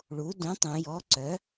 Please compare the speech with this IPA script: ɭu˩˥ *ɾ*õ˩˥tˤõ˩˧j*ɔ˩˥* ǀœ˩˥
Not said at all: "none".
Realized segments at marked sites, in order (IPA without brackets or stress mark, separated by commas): d, ɔ˩˥